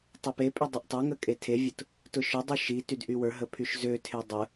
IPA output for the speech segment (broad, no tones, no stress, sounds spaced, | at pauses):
tˤ ø p e pʼ y dˤ ʊ ʔ tˤ ø ŋ ə kʼ e tʰ e vʲ ʊ t | t ʊ ʃ ʊ dˤ y ʃ i t y d ʔ y w ə˞ ɦ ə pʰ y ʃ z ø tʰ e dˤ ə